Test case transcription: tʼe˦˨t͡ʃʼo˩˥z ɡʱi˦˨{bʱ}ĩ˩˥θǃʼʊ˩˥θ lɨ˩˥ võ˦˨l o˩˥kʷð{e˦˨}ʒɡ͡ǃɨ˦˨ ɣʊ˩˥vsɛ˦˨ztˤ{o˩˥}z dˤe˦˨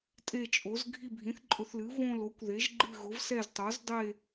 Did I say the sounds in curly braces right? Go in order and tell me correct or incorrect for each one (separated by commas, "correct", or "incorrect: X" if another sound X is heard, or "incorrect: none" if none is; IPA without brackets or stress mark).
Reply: correct, incorrect: e˩˥, correct